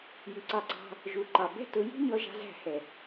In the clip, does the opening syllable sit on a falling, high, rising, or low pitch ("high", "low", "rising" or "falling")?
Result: rising